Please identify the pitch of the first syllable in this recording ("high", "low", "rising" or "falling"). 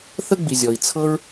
high